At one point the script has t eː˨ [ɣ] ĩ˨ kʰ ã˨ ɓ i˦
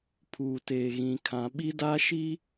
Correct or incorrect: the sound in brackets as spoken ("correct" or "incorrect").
correct